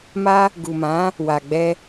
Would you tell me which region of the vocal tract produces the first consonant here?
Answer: lips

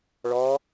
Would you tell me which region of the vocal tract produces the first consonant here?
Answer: retroflex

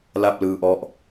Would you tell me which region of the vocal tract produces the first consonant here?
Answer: tongue tip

